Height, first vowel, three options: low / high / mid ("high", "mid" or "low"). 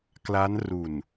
low